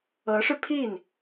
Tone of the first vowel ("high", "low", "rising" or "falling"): rising